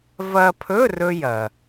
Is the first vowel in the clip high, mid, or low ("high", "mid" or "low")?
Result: low